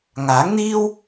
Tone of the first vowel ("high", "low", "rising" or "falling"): rising